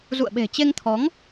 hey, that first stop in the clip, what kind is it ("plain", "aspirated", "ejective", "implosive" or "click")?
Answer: implosive